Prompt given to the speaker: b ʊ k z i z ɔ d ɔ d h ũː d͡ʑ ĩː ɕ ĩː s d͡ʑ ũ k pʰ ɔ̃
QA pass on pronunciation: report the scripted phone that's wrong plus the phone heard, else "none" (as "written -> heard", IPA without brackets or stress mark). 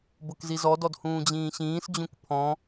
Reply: none